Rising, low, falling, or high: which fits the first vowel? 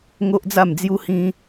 high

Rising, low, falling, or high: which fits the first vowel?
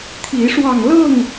rising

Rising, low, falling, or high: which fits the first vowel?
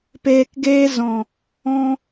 low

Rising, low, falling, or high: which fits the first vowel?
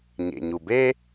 low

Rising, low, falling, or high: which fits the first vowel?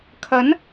rising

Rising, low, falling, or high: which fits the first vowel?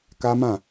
high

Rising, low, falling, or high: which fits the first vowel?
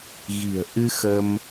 low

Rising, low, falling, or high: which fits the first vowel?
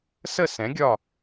falling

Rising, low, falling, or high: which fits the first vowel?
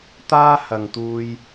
high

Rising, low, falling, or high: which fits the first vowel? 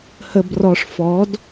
low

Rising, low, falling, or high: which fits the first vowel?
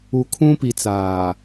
low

